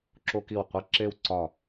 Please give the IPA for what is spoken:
ǁo˦ki˦˨w qʷe˦ǁe˦w ǀɒ˦˨

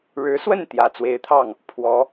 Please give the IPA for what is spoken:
ɻɻ̩˧˥swə˥˩n t̪jä˨˩t͡swe˧˥ɪ̯t̪ʰɑ˥˩ŋ | pʰwɔ˧˥

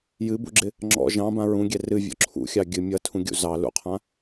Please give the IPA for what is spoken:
jɨbṵɡ͡ǁɪ | ŋ͡ǁɔ̰ ʒɑ̃bã ɹũɡʲɛ rɨvʲɔ̰ ǁʰṵxʲɑ ɡʲɨ mʲʌtʰũɡʲṵ zɑ lṵqʰã

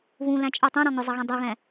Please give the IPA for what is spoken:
βũlæ̃t͡ʃʼə˞ tˤũɾɔ̃ ŋʊzˤʌɣɛ̃ dˤuɣɛ̃

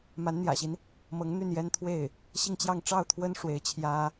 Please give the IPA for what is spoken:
ma˧˥nn̪jä̰˨˩ɕi˦n | mɤ˧˥ŋn̪y˥˩njɛ˥nt̪ʰwe˥˩ɪ̯ | ɕi˥˧ŋt͡ɕjɑ˥˧ŋ ʈ͡ʂɑ˥˩ʊ̯t̪ʰwə˥n ʂwe˧˥ɪ̯t͡ɕʰjä˥

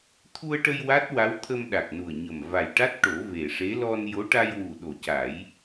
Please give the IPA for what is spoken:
t̪ʰu˧ə̯ʈə˧j wa˦˥t̚wa˧˥w t̪ʰə˧mɗa˨˩k̚nu˨˩ə̯ɲə˨˩m va˨˩jʈa˦˥t̚ ʈo˨˩˦ve˨˩ʂe˧˥ lɔ˧njo˧˥ ʈa˧jwu˨˩ ɗo˨˩ca˨˩˦j

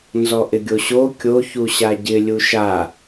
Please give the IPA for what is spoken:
nzɔʔɪɡʲoɕo kʲo çuɕaɟɪ lʲuʃa

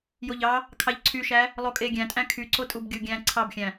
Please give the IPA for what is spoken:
joʎɑ | kʰɑʎǀʰyʃæ | lˠokʼeɡʲæ̃tʼæ̃ kʰyǀotʼub ɡʲuɡʲæ̃ ǀʰɑbxʲæ̃

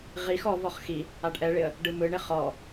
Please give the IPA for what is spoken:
ʁix ɔvɔχ xi | aɖʔɛɭɪə̯ | ɖɯmɯɳɪ χɔ

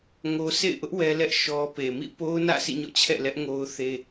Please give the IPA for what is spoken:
ŋo˦ sʰḛ˦˨ɪ̯ʔʊ˦ʔ wɛ˦lɛ˦ʔ ʃɔ˦ pe˨mḭ˦˨ po˦ʊ̯nä̰˦˨ sḭ˦˨ɲɔ̰˦˨t͡ɕʰɛ̰˦˨lɛ˦ʔ ŋo˦ʊ̯θe˦

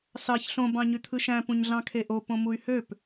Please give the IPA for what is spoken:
sɑç ɬõ bɑ̃ɲyt̪ʰɯʃæ̃ pũɲɮɑ̃kʰeʔo põmuy̯høp

